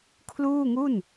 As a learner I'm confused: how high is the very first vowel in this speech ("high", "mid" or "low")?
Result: high